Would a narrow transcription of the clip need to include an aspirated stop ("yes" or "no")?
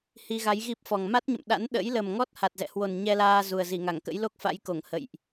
no